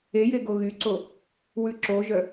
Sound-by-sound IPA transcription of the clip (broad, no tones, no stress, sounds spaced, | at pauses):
e j e ɡ o ɣ y ǀ o | w ʉ ǁ o ʒ œ